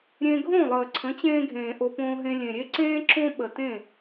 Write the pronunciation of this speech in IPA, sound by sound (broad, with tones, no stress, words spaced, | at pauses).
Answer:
ɾʲẽ˧ɡʱõ˦˨lˠəː˨ ǀʰə̃˨˦t͡ɕẽː˧ ɡʱẽː˨ʔo˧põː˧ɦẽ˧ lʲẽ˨ɾʲe˦ǀẽː˦ ǁõ˦ ɓə˨tẽ˦˨